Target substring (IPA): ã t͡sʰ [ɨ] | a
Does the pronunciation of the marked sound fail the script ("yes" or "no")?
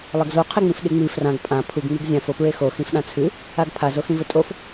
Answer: no